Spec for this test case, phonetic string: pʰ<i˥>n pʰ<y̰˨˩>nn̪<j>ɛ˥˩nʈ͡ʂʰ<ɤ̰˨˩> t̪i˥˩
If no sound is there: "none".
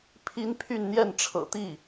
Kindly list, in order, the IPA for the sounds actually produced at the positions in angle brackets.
i˥, y˥˧, j, ɤ̰˨˩

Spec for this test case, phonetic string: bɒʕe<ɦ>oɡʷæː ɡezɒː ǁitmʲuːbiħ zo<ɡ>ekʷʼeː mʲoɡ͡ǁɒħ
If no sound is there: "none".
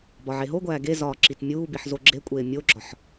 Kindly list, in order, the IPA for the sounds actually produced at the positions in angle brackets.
ɦ, ɡ͡ǁ

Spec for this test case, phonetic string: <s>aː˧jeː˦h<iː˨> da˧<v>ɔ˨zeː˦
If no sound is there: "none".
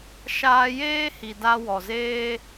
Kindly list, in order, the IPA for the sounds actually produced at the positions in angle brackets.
ʃ, i˨, w

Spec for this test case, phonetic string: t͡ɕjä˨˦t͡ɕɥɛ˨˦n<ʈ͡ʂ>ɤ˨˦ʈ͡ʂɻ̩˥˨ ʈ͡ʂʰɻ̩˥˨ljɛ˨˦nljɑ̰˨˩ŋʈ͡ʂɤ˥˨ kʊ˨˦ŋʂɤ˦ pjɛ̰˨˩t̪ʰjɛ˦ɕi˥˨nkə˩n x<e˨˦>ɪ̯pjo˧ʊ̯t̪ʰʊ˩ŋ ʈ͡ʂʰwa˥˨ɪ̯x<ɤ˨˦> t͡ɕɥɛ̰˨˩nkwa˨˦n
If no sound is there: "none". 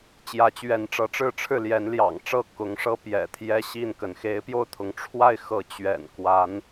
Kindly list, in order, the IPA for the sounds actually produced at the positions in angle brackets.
ʈ͡ʂ, e˨˦, ɤ˨˦

